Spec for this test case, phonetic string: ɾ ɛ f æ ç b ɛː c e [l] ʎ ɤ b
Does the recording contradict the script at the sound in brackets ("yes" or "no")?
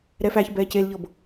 no